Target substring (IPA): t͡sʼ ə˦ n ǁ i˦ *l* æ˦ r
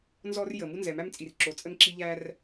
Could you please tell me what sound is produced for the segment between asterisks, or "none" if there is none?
ʎ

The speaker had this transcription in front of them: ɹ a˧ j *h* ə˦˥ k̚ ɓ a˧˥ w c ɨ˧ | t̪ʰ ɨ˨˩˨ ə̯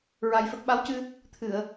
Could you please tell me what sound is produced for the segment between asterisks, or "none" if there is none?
f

